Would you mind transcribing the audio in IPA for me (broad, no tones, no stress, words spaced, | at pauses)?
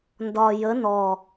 ndɒ jə nɔ